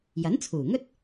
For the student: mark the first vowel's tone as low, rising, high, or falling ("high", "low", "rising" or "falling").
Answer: rising